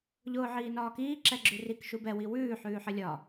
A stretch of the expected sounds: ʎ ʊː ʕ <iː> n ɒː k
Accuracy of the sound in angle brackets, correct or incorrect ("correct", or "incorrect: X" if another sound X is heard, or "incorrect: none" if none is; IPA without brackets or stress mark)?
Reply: correct